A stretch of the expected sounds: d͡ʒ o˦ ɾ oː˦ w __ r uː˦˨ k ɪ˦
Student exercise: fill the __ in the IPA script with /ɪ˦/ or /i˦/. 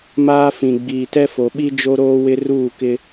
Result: ɪ˦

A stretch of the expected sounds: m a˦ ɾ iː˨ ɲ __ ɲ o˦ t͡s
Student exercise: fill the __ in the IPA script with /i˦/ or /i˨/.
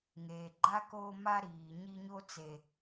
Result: i˦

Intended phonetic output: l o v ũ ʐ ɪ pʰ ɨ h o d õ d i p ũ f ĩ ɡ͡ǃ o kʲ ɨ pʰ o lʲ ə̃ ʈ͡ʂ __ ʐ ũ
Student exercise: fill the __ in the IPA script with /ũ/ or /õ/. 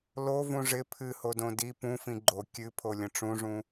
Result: ũ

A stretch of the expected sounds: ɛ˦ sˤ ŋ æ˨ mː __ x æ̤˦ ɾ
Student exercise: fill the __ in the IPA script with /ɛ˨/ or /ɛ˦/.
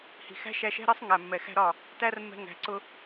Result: ɛ˨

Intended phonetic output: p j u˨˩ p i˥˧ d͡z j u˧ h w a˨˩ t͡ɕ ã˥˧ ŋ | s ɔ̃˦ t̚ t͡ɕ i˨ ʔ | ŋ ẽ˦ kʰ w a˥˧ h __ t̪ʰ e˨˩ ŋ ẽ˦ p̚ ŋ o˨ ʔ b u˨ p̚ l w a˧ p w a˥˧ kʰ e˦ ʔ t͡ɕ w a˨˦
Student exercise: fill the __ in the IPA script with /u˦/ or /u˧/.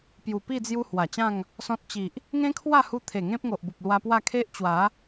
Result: u˧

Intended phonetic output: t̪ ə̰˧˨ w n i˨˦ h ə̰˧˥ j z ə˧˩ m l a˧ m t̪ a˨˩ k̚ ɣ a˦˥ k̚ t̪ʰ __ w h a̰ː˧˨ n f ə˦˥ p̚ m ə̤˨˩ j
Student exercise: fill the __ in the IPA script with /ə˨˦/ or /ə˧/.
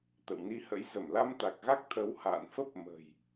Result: ə˨˦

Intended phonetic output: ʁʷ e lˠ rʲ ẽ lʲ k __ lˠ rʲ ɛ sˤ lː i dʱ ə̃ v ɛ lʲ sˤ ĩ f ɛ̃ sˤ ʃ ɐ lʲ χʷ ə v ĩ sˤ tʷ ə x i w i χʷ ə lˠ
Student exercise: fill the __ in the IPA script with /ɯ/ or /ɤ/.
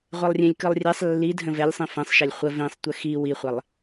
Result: ɯ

